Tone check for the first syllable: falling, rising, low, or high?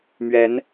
rising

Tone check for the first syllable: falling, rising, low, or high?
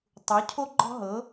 rising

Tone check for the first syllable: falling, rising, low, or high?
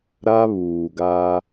high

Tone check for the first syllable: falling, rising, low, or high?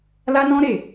high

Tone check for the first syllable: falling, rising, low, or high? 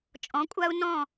rising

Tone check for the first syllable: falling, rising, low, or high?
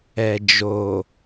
low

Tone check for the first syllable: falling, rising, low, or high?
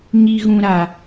low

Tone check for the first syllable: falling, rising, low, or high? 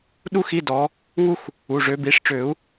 high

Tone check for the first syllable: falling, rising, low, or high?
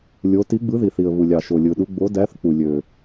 rising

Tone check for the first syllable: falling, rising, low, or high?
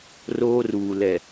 high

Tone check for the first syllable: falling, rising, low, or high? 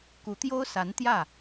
rising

